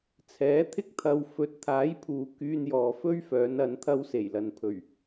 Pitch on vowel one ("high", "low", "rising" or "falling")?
rising